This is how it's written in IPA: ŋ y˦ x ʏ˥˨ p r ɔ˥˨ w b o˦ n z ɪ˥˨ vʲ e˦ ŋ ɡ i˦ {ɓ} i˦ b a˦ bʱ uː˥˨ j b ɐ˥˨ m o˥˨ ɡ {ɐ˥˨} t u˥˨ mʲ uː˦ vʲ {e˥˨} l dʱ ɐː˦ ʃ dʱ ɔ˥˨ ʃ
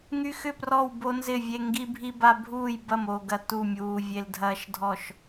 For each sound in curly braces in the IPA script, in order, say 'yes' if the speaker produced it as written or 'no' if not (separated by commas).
no, yes, no